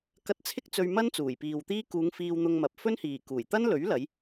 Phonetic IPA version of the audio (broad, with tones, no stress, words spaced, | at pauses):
kɐ˧t̚t͡sʰɪ˥k̚ t͡sɵ˧ɥmɐ˥n t͡suː˨˩jpiː˨wt̪iː˥ kuː˨˧ŋ fiː˧wn̪ʊ˧ŋmɐ˨p̚ fɵ˥nhiː˨˩ kuː˨˩jt̪ɐ˥n lɵ˨˥ɥlɐ˨˧j